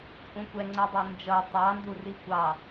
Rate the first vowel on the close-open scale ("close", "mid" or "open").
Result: close